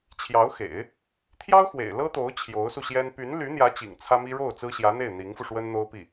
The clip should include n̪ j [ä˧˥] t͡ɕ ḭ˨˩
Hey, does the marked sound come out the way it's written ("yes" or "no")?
yes